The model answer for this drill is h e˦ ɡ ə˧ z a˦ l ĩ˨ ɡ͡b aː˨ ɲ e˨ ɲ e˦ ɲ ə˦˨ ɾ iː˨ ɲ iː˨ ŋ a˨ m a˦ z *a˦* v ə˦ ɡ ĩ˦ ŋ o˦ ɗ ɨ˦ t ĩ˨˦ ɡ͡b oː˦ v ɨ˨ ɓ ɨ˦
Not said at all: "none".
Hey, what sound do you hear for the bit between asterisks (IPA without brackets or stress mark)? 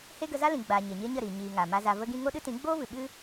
a˧